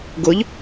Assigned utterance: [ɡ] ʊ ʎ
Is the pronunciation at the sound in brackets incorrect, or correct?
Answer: correct